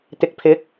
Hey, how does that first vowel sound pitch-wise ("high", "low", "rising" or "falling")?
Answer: low